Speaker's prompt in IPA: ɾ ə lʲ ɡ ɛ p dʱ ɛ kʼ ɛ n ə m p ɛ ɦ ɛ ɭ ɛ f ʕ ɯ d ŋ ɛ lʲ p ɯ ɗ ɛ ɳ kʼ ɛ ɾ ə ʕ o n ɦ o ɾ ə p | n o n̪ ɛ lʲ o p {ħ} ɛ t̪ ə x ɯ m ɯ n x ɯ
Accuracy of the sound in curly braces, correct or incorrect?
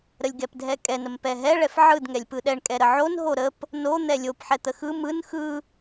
correct